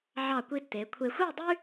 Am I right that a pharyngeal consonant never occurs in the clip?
no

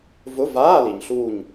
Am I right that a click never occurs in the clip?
yes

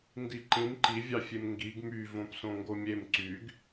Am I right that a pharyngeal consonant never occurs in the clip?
yes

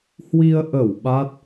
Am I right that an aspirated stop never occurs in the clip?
yes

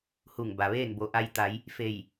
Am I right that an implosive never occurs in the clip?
yes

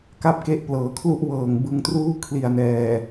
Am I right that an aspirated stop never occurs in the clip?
no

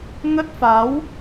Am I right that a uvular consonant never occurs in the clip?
yes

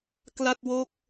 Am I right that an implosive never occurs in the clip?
yes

